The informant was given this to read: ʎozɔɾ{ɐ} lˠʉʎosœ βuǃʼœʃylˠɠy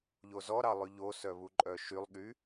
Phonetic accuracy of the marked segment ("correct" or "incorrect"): incorrect